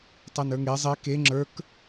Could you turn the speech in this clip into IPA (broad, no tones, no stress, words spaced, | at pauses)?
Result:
tˤənə˞ŋe zˤe ke ŋ͡ǁə˞k